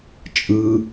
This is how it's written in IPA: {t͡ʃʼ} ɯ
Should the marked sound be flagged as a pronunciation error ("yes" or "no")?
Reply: no